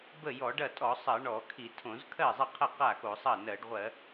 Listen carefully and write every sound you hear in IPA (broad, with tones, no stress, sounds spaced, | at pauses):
b ə˥˩ j ɔ˧˩˧ ɖ ɐ˥˩ tʼ ɔ˧˩˧ sˤ ɜ˧˩˧ ɳ ɔ˧˩˧ kʰ i˧˩˧ tʰ õ˧˩˧ z kʰ ɜ˥˩ zˤ ɐ˥˩ qʰ ɐ˥˩ q a˥˩ x o˧˩˧ sˤ ɐ˥˩ n ɜ˧˩˧ ɖ ʁʷ ɜ˧˩˧